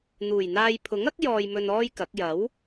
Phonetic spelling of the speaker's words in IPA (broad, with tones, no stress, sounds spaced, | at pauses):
n̪ uː˨˩ j n̪ aː˧ j pʰ ʊ˨˥ ŋ ɐ˥ k̚ j ɔː˧ j m ɵ˧ n ɔː˥ j k ɐ˨˥ k̚ j ɐ˨˥ w